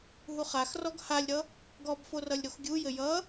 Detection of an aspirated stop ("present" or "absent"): absent